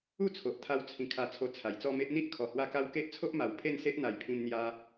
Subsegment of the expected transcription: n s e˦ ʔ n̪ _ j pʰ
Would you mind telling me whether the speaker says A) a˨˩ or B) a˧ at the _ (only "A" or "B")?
A